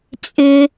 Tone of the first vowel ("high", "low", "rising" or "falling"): low